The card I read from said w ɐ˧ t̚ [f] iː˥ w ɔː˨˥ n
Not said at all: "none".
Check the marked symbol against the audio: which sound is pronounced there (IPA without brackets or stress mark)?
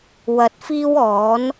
f